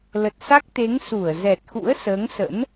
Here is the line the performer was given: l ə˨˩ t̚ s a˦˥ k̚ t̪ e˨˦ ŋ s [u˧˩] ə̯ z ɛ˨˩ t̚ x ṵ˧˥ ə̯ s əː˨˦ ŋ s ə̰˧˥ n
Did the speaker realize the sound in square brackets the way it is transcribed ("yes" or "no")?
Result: yes